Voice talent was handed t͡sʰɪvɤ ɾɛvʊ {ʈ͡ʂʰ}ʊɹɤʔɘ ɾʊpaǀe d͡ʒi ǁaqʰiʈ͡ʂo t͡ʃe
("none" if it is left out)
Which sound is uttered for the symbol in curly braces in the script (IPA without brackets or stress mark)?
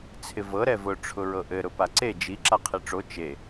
ʈ͡ʂʰ